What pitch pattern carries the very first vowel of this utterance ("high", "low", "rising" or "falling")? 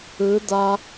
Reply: rising